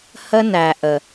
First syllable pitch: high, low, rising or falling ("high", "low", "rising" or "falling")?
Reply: high